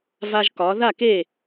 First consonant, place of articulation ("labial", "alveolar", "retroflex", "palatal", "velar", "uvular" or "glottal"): labial